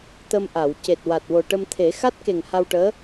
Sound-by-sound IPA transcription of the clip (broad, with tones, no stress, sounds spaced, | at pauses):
t̪ ə˧ m ʔ a˨˩˨ w c e˨˩ t̚ w a˨˩ t̚ w o˨˩ ʈ ə˧ m t̪ʰ e˨˩˦ x a˦˥ t̚ k e˨˩ ŋ h a˧ w ʈ əː˧˥